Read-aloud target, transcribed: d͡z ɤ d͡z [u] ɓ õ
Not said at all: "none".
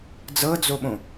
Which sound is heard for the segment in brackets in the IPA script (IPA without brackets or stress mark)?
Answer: o